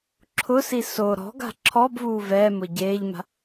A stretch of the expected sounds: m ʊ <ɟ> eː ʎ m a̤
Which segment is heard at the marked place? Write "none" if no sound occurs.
ɟ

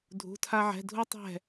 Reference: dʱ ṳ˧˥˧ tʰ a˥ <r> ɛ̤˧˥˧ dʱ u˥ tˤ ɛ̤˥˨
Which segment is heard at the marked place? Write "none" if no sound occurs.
ʕ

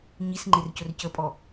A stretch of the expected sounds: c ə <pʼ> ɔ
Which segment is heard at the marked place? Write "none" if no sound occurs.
pʼ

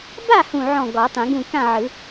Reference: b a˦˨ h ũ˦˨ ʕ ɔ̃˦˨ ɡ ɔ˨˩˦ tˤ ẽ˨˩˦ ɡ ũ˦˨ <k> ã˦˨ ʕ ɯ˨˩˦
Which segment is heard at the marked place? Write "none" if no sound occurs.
k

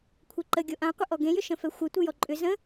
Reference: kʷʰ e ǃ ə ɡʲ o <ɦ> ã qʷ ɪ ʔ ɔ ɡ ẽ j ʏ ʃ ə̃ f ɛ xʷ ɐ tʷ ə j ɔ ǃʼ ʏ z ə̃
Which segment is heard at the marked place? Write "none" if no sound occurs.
ʔ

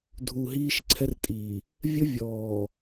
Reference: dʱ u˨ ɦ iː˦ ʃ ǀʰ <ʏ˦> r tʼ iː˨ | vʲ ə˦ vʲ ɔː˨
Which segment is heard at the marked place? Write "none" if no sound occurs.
ɛ˦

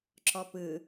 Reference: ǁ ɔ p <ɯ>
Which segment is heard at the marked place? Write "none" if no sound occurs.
ɯ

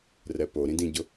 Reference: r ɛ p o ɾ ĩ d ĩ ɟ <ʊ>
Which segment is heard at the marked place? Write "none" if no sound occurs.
ʊ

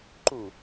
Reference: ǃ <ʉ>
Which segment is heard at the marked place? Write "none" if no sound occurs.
u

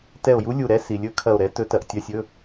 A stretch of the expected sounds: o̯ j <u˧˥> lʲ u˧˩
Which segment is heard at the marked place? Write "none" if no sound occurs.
u˧˥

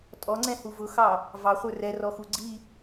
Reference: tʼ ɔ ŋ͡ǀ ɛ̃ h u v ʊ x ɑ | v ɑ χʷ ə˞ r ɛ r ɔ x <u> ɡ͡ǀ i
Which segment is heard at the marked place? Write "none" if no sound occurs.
u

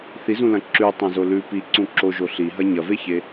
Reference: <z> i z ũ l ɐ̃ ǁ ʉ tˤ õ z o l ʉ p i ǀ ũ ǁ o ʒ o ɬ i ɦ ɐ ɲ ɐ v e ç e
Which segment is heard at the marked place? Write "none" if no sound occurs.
θ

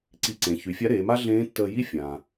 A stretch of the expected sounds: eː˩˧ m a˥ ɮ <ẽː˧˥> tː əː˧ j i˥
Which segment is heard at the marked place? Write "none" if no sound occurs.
ẽː˧˥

